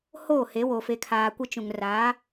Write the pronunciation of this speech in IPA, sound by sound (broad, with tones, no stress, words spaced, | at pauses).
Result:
hoː˦˨he˨˦wo˨ fe˨kʰaː˨kʷɪ˦ t͡ʃũ˨ŋra˨˦